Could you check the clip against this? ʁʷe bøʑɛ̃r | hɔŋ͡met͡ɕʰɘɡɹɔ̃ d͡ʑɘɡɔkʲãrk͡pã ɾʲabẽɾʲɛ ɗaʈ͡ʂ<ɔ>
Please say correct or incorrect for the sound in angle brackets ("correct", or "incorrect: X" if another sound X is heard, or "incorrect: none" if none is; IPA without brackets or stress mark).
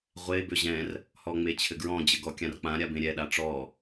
correct